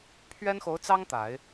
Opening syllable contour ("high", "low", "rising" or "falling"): high